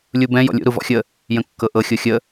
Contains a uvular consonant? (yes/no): no